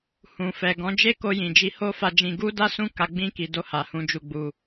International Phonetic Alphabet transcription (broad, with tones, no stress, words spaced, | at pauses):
hũ˨fɛ˨ɡɔ̃˨˦ d͡ʒe˦ko˧ jĩ˨d͡ʒi˧ ho˦fa˧d͡ʒĩ˧ ɡu˦da˦ sũ˦ka˧ ɡ͡bĩ˧ki˨ do˧ha˨ hũ˨˦ d͡ʒu˧ɡ͡bu˧